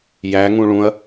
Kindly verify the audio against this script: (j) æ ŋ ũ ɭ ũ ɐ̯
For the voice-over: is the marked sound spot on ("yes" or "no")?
yes